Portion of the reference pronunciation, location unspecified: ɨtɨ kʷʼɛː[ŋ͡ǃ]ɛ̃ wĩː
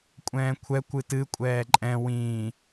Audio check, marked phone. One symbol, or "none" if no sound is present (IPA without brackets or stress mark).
ǃʼ